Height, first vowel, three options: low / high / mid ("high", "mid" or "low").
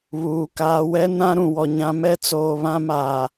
high